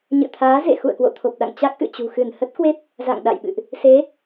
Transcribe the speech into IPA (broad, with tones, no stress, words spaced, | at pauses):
ɲɨ̰˧˨t̪ʰaː˨˦ zḛ˧˨ xṵ˧˨ə̯kwo̰˧˨t̪ʰo˨˩p̚ɗa̰˧˨ŋ t͡ɕa˦˥k̚ʔɨ̰˧˨t͡ɕṳ˨˩xɨ˧˩n hə˦˥t̚kwe˦˥p̚ | za̰˧˨ŋɗa̰˧˨jɓɨ̰˧˨ʔ | se˨˦